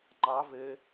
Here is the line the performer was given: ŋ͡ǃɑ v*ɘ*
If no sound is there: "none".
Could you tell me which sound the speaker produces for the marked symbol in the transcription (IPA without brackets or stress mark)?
ɘ